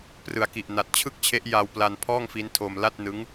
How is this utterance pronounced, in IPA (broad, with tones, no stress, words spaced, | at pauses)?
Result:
prɯ˩˦a̯ki˨˩ʔ na˨˩t̚t͡ɕʰɯ˥˩k̚t͡ɕʰe˦˥ʔja˧w pla˧npʰɔː˥˩ŋfi˦˥n tʰo˧m la˥˩t̚nɯ˦˥ŋ